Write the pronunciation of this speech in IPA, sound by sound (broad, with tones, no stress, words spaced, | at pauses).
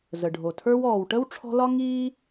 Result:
zə˩ɖʱo˩tʰə˞˥w ɔː˩wʈə˥w ʈ͡ʂʰɔ̤˦lɒ˥ ŋiː˥